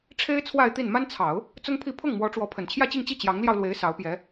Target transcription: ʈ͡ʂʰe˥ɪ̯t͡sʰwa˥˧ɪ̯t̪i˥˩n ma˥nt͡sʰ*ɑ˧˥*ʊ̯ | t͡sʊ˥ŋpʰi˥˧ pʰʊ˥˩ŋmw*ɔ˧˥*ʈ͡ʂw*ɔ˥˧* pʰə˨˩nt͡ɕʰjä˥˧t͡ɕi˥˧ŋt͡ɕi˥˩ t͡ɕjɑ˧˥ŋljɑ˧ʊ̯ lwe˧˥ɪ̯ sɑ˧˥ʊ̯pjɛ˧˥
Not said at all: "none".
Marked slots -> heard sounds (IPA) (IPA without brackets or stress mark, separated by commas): ɑ˨˩˦, ɔ˧˥, ɔ˧˥